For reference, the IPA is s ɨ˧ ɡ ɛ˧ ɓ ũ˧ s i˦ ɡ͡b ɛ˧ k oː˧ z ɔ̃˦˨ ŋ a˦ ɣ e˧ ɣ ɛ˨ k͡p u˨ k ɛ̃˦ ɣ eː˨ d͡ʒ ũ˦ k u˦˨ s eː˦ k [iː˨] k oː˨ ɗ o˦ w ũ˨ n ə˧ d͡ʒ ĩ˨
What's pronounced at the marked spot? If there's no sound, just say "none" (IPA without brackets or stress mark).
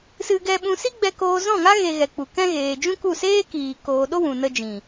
iː˨